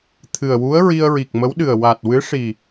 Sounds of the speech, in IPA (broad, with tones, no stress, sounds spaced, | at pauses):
t̪ʰ ɨ˨˩ ə̯ w u˧˥ ə̯ ɹ i˧ ə̯ ɹ i˨˩ k̚ m ə˧˥ w ɗ ɨ˨˩ ə̯ w a˨˩ t̚ w ɨ˧˥ ʂ i˨˩